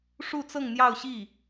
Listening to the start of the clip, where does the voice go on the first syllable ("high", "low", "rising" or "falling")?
falling